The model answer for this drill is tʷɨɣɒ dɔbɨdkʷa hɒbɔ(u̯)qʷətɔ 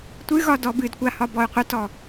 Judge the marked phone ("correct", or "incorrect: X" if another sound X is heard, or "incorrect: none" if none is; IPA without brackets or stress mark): incorrect: y̯